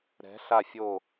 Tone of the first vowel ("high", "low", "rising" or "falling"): rising